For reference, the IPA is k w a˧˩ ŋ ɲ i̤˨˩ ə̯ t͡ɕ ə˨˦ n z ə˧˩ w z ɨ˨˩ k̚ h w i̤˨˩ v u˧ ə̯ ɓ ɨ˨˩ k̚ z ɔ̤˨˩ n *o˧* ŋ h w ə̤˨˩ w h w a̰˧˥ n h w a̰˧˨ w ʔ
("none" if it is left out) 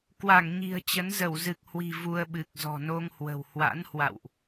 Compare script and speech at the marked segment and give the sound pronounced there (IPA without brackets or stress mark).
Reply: o˧